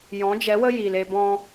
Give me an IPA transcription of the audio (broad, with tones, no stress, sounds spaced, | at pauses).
j ɔ̃˨˦ d͡ʒ ɛ˨˦ w ə˦ j i˨ l e˧ b ɔ̃˧